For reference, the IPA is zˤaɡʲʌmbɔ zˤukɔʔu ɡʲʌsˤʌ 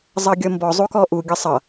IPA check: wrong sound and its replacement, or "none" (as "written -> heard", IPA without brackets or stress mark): a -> ʌ